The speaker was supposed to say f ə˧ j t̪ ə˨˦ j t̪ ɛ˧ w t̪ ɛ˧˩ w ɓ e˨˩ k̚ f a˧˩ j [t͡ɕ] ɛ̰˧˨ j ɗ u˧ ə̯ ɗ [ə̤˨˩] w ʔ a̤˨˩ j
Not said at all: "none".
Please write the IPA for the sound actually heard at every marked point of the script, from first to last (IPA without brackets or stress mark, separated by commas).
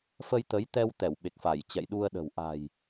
t͡ɕ, ə̤˨˩